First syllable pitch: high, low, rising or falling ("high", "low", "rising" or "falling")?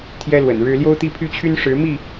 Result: high